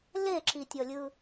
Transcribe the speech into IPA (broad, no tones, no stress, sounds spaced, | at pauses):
l e ǁ i tʲ ɔ lʲ ɯ